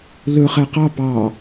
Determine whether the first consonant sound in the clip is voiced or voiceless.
voiced